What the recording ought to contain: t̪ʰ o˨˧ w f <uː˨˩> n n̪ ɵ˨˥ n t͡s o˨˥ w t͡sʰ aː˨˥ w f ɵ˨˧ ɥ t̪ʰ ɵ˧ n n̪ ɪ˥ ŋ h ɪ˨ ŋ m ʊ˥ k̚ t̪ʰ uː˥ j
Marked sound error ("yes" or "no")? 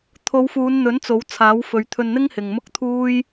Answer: yes